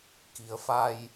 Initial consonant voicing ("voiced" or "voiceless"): voiceless